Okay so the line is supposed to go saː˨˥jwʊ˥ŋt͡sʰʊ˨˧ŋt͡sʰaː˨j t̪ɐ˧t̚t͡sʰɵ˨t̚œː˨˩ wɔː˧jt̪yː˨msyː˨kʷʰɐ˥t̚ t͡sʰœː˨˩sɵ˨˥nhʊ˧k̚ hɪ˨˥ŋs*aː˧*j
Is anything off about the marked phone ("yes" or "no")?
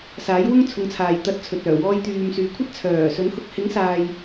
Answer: yes